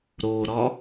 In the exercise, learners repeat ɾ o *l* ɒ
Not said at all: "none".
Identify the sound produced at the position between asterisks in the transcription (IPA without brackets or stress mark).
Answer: ɾ